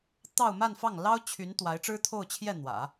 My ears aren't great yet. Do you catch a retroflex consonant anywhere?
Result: yes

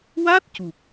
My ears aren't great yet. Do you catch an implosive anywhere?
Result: no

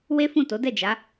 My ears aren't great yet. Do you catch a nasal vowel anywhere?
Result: yes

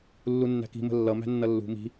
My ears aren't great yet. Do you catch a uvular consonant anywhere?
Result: no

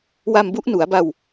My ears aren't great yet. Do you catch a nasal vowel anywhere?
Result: no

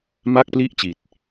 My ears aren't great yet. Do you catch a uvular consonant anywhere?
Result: no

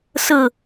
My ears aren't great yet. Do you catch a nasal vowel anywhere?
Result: no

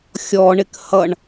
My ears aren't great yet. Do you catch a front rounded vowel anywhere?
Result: no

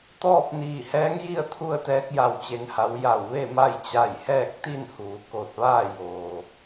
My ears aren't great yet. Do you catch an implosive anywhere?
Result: no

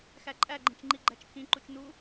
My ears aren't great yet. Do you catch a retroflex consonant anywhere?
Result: no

